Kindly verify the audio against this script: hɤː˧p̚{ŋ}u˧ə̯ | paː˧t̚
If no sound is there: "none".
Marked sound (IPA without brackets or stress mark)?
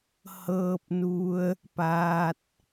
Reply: n